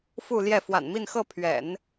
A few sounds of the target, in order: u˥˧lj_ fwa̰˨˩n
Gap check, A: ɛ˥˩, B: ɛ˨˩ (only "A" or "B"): A